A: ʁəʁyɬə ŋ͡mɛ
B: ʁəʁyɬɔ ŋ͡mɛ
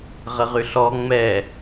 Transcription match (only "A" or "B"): B